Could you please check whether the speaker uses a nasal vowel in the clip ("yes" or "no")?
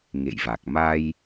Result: no